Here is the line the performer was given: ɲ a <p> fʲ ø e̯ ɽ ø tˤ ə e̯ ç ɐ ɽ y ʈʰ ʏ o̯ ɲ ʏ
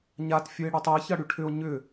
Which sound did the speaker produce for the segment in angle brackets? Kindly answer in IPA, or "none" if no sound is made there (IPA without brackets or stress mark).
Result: t